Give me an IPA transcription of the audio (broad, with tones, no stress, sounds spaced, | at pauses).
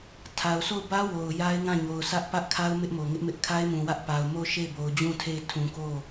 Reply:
tʰ a˨ ʊ̯ sʰ o˦˨ ʊ̯ b ä˦ w o˨ ʊ̯ j a˦ ɪ̯ ŋ ã˦˨ ɲ o˨ ʊ̯ s ä˦ ʔ p ä˦ ʔ kʰ a˦ ʊ̯ m ɪ˦ ʔ m o˨ ŋ ɪ˦ ʔ m ɪ˦ ʔ kʰ a˦ ɪ̯ m ũ˨ w ä˦ ʔ p a˨ ʊ̯ m o˦˨ ʊ̯ ʃ e˦˨ ɪ̯ b o˨ ʊ̯ d͡ʑ ũ˦˨ tʰ e˦˨ ɪ̯ tʰ ũ˨ k o˦˨